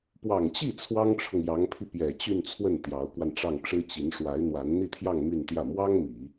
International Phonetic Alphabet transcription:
p w ɑ˨˩ ŋ t͡ɕ i˥˩ t͡sʰ w ɑ˥ ŋ ʈ͡ʂʰ ʊ˨ ŋ j ɑ˧˥ ŋ pʰ i˧ p j ɛ˨˩ t͡ɕ y˥˧ n t͡sʰ w ə˥˩ n t̪ j ɑ˧˥ ʊ̯ k w a˧ n ʈ͡ʂ ɑ˥˩ ŋ ʈ͡ʂ ɻ̩˥ t͡ɕ i˧˥ n ʂ w a˧˥ ɪ̯ n̪ w a˧˥ n n̪ i˥˧ t̪ʰ j ɑ˥˧ ŋ m y˥˧ n t̪ j ä˥˩ m w ɑ˥ ŋ m i˨˩˦

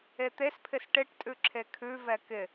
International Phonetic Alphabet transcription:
e t̪ e s pʰ ɪ s ʈ ɪ ʈ tʼ ʉ ǁʰ e kʰ ʉ v ɛ k ɪ

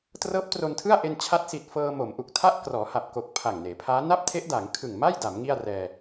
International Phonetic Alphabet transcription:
t r ɤː˦˥ p̚ t r o˧ n tʰ ɯ˥˩ a̯ ʔ e˧ n t͡ɕʰ a˦˥ t̚ s i˨˩ t̚ f ɤː˧ m o˩˦ m ʔ u˨˩ k̚ tʰ a˥˩ ʔ k r ɔː˩˦ h a˨˩ p̚ k o˨˩ k̚ pʰ a˨˩ ŋ n eː˩˦ pʰ aː˦˥ n a˥˩ p̚ tʰ e˦˥ ʔ d a˩˦ ŋ kʰ ɯ˨˩ ŋ m a˥˩ j d a˩˦ m ŋ i˥˩ a̯ r ɛː˧

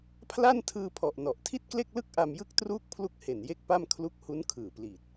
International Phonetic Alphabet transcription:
pʰ l a˥˩ n tʰ ɯː˧ pʰ ɔ˨˩ ʔ n ɔ˨˩ ʔ tʰ i˥˩ t̚ k l e˥˩ k̚ l ɯ˥˩ k̚ ʔ a˧ m j ɯ˥˩ k̚ t r uː˥˩ k̚ pʰ l u˥˩ k̚ h e˨˩ n j e˥˩ k̚ p a˥˩ m kʰ l u˦˥ k̚ h u˦˥ n kʰ ɯː˨˩ p l iː˨˩ t̚

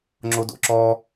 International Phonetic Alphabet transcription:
ŋ͡ǁ o d o̰ ǁ ɔ

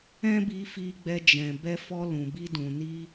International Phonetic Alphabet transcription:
ɛ̃˦ b i˧ f i˧ ɡ͡b ɛ˧ d͡ʒ ɛ̃˨ b ɛ˧ f ɔ˧ l ũ˨ b i˧ d ũ˨ n i˧

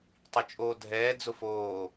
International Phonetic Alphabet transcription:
tˤ i t͡ʃʼ oː dʱ ɛː d͡z ʊ f oː

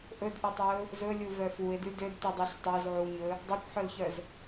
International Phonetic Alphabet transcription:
ʔ ɵ d ʔ ɵ tˤ ø ʊ̯ | z ɵ lʲ u v œ f u ɪ̯ d ʉ d ø d t ʉ dˤ ʉ ɬ tˤ œ z ʕ u ɲ ɵ | dˤ ɑ kʷ ħ œ l ç œ z

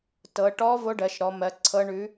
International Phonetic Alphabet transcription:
t ɤ˩˧ ʈ ɔ˧˥ v o˧˥ ɖ ɜ˩˧ ʃ ɾ ɔ˩˧ m ɜ˩˧ ǀʰ ɤ˧˥ ɳ ʉ˧˥

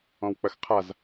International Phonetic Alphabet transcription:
ɔ̃ w k͡p ɐ x qʰ a z

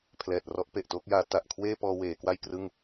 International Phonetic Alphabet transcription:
pʰ l ɛː˨˩ t̚ r ɔ˦˥ ʔ p e˨˩ ʔ t oː˦˥ k̚ j aː˦˥ t a˨˩ ʔ kʰ w eː˥˩ p ɔː˧ w eː˩˦ k w a˥˩ j k r ɯ˥˩ ŋ

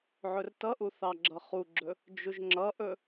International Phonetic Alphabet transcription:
ʕ ɵ r t ʌ ʔ u θ ɑ ɡ͡ǁ ʌ χ u ɡ͡ǁ ɵ | d͡ʒ u ʒ ŋ͡ǁ ʌ ʔ ɵ

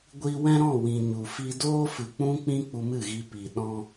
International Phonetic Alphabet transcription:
ɡʷ i˧ w ɛ̃˦ ɾ ɔ̃˦˨ w ĩ˨ ɲ u˨ f i˦ d oː˦ f ɨ˨ k͡p ũ˦ k͡p ĩ˦ k͡p u˧ m ɨ˦˨ ɣ i˧ p i˨ ɗ ɔ̃˦

